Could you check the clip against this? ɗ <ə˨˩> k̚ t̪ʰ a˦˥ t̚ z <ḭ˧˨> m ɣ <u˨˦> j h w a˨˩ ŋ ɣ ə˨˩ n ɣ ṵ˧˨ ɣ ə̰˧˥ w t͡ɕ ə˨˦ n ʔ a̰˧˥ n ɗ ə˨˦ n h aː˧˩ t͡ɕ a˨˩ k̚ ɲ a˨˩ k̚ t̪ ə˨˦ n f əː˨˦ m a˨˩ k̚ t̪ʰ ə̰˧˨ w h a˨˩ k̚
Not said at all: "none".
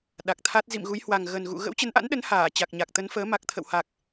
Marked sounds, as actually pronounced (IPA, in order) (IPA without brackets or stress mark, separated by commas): a˨˩, ḭ˧˨, u˨˦